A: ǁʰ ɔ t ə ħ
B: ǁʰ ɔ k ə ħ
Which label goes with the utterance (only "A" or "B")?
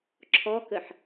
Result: B